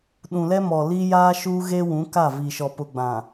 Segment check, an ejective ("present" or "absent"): absent